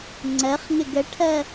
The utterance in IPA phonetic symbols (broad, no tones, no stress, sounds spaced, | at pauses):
ŋ͡ǀ ɜ χ ŋ ɪ ɡ ə ʈʰ ɜ